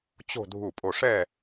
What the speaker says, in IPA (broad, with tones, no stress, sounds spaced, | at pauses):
t͡ɕ o̤˥˧ dʱ u˥˩ pʼ o˥˧ ʂ ɛ˥˧